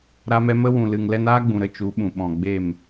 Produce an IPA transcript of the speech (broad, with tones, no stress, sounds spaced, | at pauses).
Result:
ɾ a˧ m ɛ˧ m ə˧ w ũ˨ l ɨ˨ ŋ l ɛ˧ n aː˦ ɡ͡b ũ˨ ɾ ə˧ t͡ʃ u˨˦ ɓ ũ˨ ɓ ɔ̃˨ ɡ͡b e˦˨ m